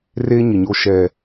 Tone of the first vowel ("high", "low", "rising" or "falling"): high